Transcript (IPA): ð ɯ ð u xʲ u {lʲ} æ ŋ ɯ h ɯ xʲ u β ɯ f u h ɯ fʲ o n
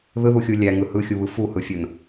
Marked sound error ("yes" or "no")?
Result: no